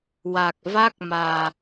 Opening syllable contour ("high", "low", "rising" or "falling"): low